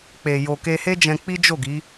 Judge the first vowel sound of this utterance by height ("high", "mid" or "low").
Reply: mid